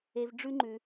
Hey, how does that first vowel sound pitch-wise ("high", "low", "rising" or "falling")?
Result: low